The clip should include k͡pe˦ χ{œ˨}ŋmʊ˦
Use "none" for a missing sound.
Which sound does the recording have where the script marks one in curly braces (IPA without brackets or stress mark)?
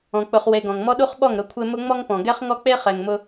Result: ɛ˨